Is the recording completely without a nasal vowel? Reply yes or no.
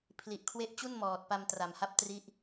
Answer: yes